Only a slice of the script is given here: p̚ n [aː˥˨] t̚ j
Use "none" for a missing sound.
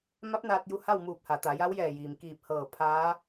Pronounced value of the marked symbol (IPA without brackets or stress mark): aː˧